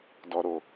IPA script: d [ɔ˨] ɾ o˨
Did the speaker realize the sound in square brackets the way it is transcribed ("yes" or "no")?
yes